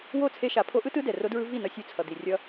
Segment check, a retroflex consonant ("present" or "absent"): absent